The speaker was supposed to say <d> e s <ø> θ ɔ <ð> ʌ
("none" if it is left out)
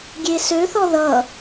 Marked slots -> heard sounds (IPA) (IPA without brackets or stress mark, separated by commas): ɡʲ, ø, ð